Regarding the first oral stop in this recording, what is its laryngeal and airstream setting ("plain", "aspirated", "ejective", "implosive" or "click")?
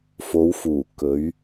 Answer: plain